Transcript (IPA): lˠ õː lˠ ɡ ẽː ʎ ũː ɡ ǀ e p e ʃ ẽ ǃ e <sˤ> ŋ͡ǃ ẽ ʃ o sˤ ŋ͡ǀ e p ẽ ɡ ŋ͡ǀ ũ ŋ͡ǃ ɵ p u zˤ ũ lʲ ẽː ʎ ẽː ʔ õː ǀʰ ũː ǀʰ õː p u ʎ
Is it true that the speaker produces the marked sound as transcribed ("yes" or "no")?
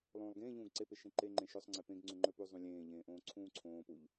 no